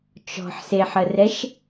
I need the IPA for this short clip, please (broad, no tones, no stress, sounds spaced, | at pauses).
t͡ʃ ɔ̤ ħ s e ħ ə r ɛ ʃ